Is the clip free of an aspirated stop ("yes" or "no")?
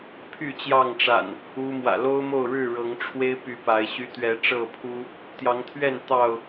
no